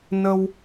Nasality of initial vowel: oral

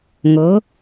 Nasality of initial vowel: oral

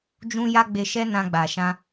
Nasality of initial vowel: nasal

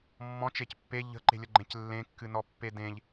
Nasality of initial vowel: nasal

